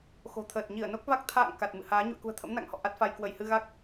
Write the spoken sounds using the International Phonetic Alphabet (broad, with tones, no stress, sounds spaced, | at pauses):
x o̤˨˩ t̪ʰ əː˨˩ t̚ ɲ i˧˩ ə̯ n o˦˥ k̚ v a˦˥ k̚ t̪ʰ a̰ː˧˨ ŋ k a˨˩ t̚ m ɨ̰˧˨ h aː˨˦ ɲ ṵ˧˨ ə̯ k ṳ˨˩ ə̯ t̪ʰ ə̰˧˥ m n a̰˧˨ ŋ h ɔ̰˧˨ ʔ a˦˥ t̚ f a˧ j k w ə˧˩ j h ɨ˧ ɣ a˦˥ k̚